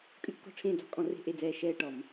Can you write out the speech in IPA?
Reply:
kʼ ʉ˦˨ t͡ʃ k ɔ̤˦˨ ʈ͡ʂʰ ẽː˦˨ d͡z ɔ̤˧˩˧ kʼ ɔ̃˧˩˧ r e̤˦˨ ʔ e˦˨ d͡z ɛː˦˨ ʃ ɛː˦˨ ʈ ɔ˧˩˧ m

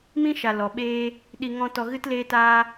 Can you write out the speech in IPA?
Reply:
m ĩ˦ ʃ a˨ l ɔ˨ ɓ eː˦ | ɗ i˧ ŋ ɔ̃˦ t ɔ˧ ɣ ɨ˦ t l eː˦ t aː˦

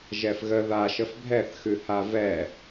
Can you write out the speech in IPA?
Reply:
ʒ ɛ f ɣ ə ð a ʃ ə f bʱ ɛ θ x ʉ h a v ɛ

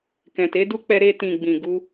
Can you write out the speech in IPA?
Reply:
k ɛ̃˨ t e˨˦ d u˦ k͡p ɛ˧ ɾ e˧ t ĩ˨ ɡ͡b ĩ˨ ɡ u˧

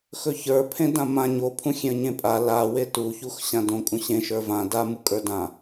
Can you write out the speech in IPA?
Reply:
x ɵ ç ə˞ pʰ ẽ d ã m ã ɲ o pʰ ũ xʲ ẽ ə̯ ɲ ẽ pʼ a l a w e t u ç u x ɕ ã d õ kʼ ũ ɕ ẽ ʃ ə˞ v ã d a m u kʼ ə˞ d ã

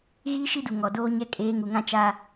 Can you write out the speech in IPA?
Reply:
ɣ iː˦ ʃ i˦ d u˨ ŋ ɔ˨ d oː˦ ɲ ɛ˦ kʼ eː˨˦ ŋ u˨ ŋ ã˦ t͡ʃ a˦

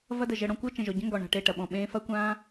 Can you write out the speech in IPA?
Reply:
v ɐ˦ d ə˨ ʒ ə˧ ɽ ɔ̃˧ kʷ ɤ˦ t͡ʃ ə̃˨ ʒ ɔ˨ ɟ ə̃˦ ŋ ɡ ɔ˨ ɳ a̤˨ ʈ e˦˨ ʈ ɐ˨ ɓ ɔ̃˨ ɓ ẽː˦ f ɐ˦ kʷ ãː˦

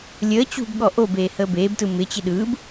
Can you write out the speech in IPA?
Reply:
lʲ əː t͡ɕ ṳ b ɠ ɔ ʔ o b eː h əː b eː b t ɯ m ɪ t͡ɕ ɪ ɗ ɯː b

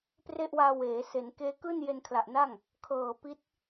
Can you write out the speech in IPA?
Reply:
p r e˥˩ ʔ w aː˧ w eː˩˦ s e˩˦ n k eː˦˥ k ɯː˥˩ n j e˧ n kʰ l a˨˩ ʔ n a˥˩ ŋ | kʰ ɤː˨˩ p i˦˥ t̚

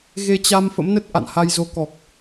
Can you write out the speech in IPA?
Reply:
ɣ e˧ t͡ɕ a˧ m f ə̰˧˥ m n ə˦˥ t̚ ʔ a̰˧˨ n h a˧ j z o˨˦ k ɔ˨˩ k̚

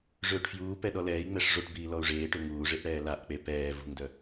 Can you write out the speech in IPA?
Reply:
ʐ øː ʈ f j uː p ɛ ɗ ɔ l ɛː i̯ ŋ͡m ɛ ʂ ʐ o ʈ b iː l ɔ u̯ ʐ eː ʈ ø ŋ uː ʐ e ʔ ɽ ɛː l a ʔ k͡p e p ɛː v ṳ ŋ d œ

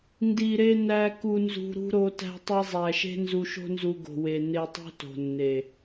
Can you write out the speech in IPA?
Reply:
n d i˨ ɾ e˧ n æ˧ k u˧ n z ṳ˧ ɾ ṳ˦ ɾ o˧ t æ̤˧ tˤ e˧ zˤ æ˨ ʃ e̤˦ n z u˧ ʃ o̤˦ n z u˧ ɡ o̤˨ w e˨ n e˧ tˤ o̤˦ t o̤˨ nː e˨

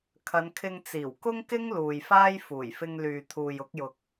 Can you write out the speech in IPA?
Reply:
kʰ ɐ˨˧ n kʰ ɪ˧ ŋ t͡s iː˨˩ w k ʊ˥ ŋ k ɪ˥ ŋ l uː˨ j f aː˥ j f uː˨˩ j f ɪ˧ ŋ l yː˨ t̪ʰ uː˨ j ʊ˨˥ k̚ j ʊ˨ k̚

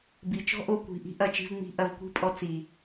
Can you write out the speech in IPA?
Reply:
b i˨ t͡ʃ ɔ̤˦ ʔ o˧ kʷ i̤˨ ʔ i̤˦ ʔ ɐ˨˦ t͡ʃ i̤˧ v ŋ͡m i̤˦ ʔ ɐ˧ v kʷ i̤˦ pʼ ɔ˧ t͡s i˨

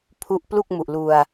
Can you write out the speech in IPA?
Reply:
pʰ u˦˥ ʔ p l u˥˩ k̚ m u˨˩ ʔ l u˧ a̯

